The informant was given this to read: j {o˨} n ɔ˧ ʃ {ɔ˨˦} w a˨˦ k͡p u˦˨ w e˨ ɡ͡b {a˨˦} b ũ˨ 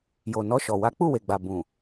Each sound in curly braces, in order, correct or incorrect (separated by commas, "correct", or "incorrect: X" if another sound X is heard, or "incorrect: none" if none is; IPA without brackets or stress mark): correct, incorrect: ɔ˨, incorrect: a˨